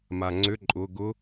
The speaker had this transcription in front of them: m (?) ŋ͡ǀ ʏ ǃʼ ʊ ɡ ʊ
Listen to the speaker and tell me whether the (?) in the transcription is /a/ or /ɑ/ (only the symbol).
a